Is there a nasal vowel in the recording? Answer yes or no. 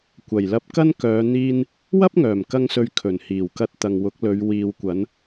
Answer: no